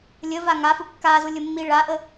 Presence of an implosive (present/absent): absent